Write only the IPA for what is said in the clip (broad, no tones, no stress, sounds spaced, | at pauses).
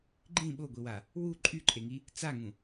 ɡ͡ǃ ĩ ɓ o ɡʷ i w a | w u ǃʼ y ǃʼ e ŋ i | t͡s a ŋ ũ